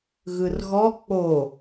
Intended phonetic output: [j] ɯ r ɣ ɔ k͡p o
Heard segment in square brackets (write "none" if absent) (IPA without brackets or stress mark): ɣ